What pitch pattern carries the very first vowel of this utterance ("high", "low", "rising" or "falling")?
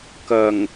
low